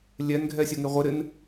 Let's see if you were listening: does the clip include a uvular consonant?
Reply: yes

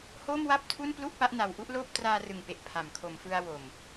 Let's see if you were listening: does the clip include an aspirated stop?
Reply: yes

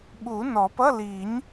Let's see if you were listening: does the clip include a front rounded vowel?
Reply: no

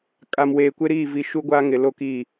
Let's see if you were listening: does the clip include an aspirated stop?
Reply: no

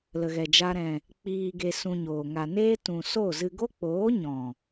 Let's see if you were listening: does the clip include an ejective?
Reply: no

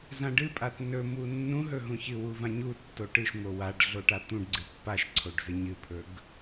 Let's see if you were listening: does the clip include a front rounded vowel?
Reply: no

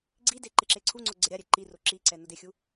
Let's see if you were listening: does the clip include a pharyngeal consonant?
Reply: no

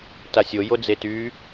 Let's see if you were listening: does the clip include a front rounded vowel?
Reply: yes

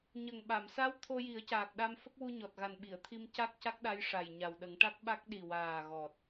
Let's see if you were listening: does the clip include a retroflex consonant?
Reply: yes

